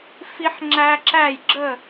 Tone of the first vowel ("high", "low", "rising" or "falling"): high